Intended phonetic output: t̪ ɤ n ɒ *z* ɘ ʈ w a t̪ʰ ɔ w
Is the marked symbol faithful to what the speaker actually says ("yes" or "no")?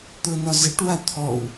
yes